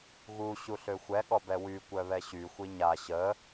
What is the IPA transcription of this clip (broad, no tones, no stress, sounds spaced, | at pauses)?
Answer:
ɣ u ɕ u ɬ ø xʷ ɛ ɠ ɔ b ɛ w y kʷ œ β ɛ ɕ y xʷ i ɲ a ɕ ə